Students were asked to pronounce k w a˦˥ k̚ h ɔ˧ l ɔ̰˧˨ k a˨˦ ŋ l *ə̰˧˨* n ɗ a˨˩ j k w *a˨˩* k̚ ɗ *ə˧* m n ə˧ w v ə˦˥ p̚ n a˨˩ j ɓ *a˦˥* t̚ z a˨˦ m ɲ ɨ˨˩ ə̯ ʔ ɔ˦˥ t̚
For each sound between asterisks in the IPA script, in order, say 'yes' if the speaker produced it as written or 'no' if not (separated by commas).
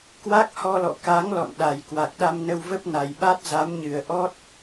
no, yes, no, yes